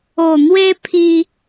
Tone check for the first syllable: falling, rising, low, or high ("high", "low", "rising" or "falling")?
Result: low